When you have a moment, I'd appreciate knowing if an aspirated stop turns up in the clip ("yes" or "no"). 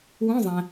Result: no